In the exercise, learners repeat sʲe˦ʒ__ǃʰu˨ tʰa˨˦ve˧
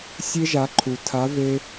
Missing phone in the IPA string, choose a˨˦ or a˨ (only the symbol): a˨˦